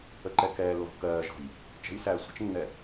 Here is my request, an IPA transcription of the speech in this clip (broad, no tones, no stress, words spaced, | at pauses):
əǃɛkɛːlːɔ̤ kɜːʒɔ̤j | t͡ʃə̤jsæː sʷə̤t͡ʃnːɛ